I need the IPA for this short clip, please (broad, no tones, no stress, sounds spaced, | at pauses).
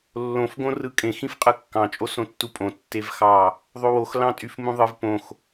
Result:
lː õ f ɡ õ r ɯ kʼ ẽ x ĩ f qʼ ɯ kː ɑ̃ t͡ʃʼ o s õ tː u pʼ õ tː e v x ɑ | ðˤ o w o x l ɑ̃ tʼ y f m ũ ðˤ ɯ v p õ x